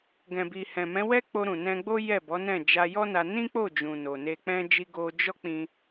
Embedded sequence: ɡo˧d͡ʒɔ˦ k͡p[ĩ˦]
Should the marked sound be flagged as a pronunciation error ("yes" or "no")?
no